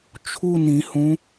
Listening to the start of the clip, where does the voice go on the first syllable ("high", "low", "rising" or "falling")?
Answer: falling